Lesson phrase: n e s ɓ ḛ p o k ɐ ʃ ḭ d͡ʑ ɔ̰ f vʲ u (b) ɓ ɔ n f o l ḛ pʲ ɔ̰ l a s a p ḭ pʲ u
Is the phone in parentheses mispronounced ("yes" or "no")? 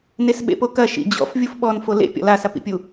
yes